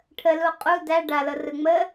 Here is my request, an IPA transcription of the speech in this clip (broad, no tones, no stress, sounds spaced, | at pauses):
ʈʰ ə l u qʼ u d æ ɖ a l ɤ r ɯ ŋ͡m ə